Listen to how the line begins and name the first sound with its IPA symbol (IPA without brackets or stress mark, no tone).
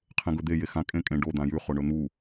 qʰ